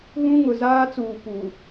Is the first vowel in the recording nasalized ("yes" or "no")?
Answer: yes